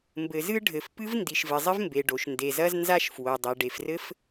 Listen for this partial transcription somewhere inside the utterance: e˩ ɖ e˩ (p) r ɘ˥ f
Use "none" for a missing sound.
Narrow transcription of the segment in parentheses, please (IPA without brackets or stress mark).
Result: f